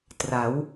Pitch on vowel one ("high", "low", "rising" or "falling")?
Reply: rising